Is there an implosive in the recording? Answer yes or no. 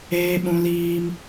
yes